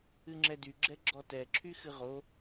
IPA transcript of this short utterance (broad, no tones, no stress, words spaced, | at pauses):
ɨŋ͡ǁɛdy ɡ͡ǁɛɡ͡ǁɔtɛ ǁʰyxɨʁo